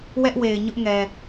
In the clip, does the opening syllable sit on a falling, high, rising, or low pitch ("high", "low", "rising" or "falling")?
high